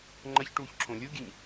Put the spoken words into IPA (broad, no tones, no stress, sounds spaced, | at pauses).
ŋ͡ǃ ɐ ç ʈ uː ç ǁʰ õ lʲ u ɡʲ ɨ ɲ